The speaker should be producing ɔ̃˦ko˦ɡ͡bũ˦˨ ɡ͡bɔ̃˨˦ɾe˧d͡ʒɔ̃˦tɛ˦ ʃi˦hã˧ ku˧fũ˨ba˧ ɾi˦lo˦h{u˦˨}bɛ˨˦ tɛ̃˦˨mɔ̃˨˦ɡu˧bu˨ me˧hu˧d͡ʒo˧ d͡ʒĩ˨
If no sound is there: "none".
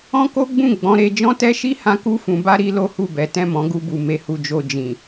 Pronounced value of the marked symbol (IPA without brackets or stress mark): u˦˨